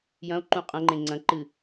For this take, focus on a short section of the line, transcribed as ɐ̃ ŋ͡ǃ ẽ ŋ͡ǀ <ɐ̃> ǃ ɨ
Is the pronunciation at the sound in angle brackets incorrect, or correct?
correct